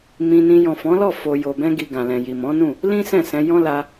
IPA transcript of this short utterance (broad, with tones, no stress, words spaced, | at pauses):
mĩ˧nĩ˧ jɔ̃˨fɔ̃˨˦lɔ˦˨ fo˧ jo˨bɛ̃˧ɡi˨ ɡã˨lɛ̃˨ji˨ mɔ̃˨˦nũ˦˨ | lĩ˦ sɛ̃˦˨sɛ̃˧ jɔ̃˦ la˧